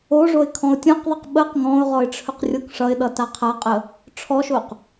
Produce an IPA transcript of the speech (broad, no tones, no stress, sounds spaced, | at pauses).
o ʐ o ɪ̯ kʰ ɔ̃ ʊ̯ tʲ ɔ̃ q ðˤ ʌ q ɓ ə q ŋ ɔ̃ ʊ̯ ʁ ɔ ɪ̯ ʈ͡ʂʰ ɵ q rʲ o k ʂ ʌ ɪ̯ ɗ ʌ t a qʰ a qʼ ə | ʈ͡ʂʰ ɔ ʃ o q